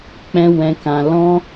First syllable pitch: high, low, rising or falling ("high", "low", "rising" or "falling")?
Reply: high